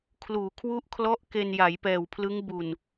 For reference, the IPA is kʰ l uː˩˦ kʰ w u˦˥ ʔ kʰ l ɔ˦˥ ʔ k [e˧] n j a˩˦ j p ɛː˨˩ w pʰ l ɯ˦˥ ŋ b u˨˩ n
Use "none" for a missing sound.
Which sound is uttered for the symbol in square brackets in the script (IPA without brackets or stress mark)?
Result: e˧